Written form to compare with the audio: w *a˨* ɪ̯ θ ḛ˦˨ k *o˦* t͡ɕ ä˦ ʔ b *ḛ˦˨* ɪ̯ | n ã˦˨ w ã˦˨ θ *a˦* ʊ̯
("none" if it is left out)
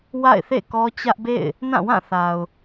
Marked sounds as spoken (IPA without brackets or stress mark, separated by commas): a̰˦˨, ɔ˦, ḛ˦˨, a˨